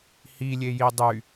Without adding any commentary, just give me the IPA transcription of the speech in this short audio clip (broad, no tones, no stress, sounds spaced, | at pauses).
h i lʲ e j i dˤ y